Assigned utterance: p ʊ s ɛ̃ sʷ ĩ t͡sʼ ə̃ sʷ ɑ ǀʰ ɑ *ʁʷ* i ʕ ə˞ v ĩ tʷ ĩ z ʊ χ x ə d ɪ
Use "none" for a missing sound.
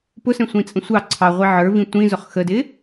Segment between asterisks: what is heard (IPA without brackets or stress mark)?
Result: ʁʷ